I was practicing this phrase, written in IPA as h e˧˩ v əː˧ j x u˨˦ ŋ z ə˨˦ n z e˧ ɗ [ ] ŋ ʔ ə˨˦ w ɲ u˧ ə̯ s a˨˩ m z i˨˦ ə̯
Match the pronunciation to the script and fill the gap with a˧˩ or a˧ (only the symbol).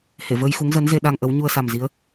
a˧